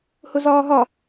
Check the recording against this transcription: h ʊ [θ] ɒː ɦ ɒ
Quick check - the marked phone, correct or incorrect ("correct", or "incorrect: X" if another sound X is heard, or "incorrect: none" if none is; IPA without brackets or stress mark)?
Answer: incorrect: z